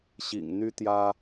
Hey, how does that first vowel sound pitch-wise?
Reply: low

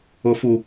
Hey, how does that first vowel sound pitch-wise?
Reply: low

